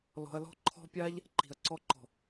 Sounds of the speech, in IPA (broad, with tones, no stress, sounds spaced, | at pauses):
l ɔ̤˧ ɐ̯ l ɔ̤˦ ǃʰ ɔ̤˦ pʲ a˦ ʎ | ǃ i̤˨ ɐ̯ ǀ ɔ˧ ǃ ɔ̤˨